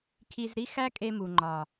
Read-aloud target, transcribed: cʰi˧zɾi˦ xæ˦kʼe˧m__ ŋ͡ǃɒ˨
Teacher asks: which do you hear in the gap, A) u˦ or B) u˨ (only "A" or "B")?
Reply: B